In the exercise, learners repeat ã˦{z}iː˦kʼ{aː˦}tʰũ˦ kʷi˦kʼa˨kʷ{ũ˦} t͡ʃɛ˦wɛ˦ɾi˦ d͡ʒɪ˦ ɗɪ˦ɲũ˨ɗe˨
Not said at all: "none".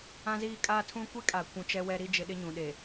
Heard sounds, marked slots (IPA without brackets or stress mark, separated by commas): z, aː˦, ũ˨